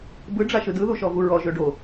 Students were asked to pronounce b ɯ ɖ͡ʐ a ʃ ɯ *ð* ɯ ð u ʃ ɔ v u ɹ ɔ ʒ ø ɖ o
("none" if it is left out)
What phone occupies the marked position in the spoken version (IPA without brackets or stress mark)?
d